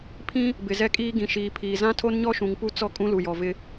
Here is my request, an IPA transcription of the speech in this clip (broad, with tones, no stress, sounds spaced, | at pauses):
pʰ ĩ˦ | b ɪ˨ z ɛ˦ kʼ iː˦ ɡ ĩ˨ ʃ iː˨ pʰ iː˨ z ã˦ tʰ o˦ n ɲ ɔ˦ ʃ ũ˨ ŋ p u˦ t͡s ɔ˦ kʼ ũ˦ l u˨ j ɔ˨ v ɪ˦